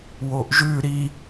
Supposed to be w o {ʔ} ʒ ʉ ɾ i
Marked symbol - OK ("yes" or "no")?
yes